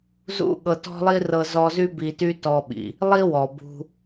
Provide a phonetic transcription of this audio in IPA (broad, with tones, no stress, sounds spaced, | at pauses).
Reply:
z ṵ˦ ɠ ɤ˧ t ɔ̤˦ lˠ i˦ r ɤ˧ z ɔ˧ z y˦ b i˧ t y˦ t ɔ˧ ɓ ḭ˨ | lˠ i˦ w ɔ˨ b ṳ˧